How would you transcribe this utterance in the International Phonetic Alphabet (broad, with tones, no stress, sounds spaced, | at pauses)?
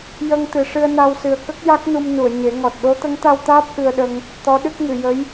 j ə˧ ŋ t̪ ɨ˨˩ ʂ ɨ˧ ə̯ n a˧ w s ɨ˨˩ ə̯ k ə˦˥ k̚ j a˦˥ k̚ n u˧ m n u˨˩˨ ə̯ ɲ e˨˩˦ ŋ ɔ˨˩ t̚ ɗ o˧˥ t̪ ə˧˥ ŋ t̪ a˧ w t̪ aː˦˥ p̚ ʔ ɨ˧ ə̯ ɗ ə˧ ŋ | t̪ ɔ˧˥ ɗ ɨ˦˥ k̚ ŋ ɨ˨˩˨ j ə˧˥ j